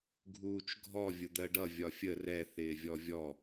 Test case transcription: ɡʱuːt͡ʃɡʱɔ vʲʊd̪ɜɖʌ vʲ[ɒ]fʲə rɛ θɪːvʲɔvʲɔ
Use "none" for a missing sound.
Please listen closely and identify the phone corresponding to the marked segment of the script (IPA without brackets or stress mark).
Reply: ɒ